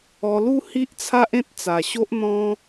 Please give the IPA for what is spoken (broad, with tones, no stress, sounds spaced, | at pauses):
ɔ˧ l u˦ h i˦ ʔ t͡sʰ a˦ ʔ ẽ˦ t̚ t͡s a˨˩ ɕ o˦ ʔ n̪ ɔ̃˦